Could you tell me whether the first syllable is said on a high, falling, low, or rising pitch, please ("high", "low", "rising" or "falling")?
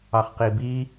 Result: low